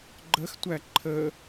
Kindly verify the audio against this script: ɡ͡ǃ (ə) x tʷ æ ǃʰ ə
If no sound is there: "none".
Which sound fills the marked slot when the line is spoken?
ə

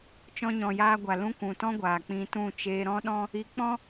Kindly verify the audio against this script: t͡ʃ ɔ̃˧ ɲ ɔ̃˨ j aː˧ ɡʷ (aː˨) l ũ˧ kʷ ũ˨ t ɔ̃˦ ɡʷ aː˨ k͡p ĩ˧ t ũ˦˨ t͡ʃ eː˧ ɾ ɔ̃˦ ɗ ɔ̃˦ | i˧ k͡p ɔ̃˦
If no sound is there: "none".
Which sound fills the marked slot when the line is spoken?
a˨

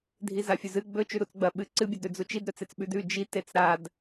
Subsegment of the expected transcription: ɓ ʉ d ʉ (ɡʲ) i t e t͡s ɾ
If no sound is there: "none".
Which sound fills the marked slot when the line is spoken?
d͡ʒ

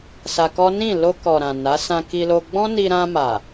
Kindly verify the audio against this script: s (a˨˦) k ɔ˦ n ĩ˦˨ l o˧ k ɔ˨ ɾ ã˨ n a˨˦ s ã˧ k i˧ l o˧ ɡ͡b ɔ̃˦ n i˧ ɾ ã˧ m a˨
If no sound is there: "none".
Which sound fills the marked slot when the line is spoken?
a˧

